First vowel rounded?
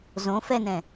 yes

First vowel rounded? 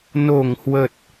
yes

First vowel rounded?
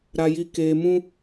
no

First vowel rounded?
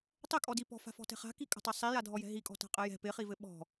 no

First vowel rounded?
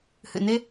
no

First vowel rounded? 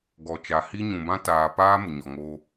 yes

